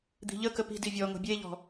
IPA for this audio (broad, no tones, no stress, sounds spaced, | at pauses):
d̪ i̤ ʎ ə k ə p i̤ d i vʲ ɔ ŋ o̤ bʲ e ʎ ɔ̤